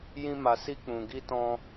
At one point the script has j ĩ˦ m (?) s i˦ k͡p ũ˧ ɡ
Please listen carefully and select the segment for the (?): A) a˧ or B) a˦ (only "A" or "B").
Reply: A